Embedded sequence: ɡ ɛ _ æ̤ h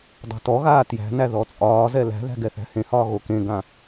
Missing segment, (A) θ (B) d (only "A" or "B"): A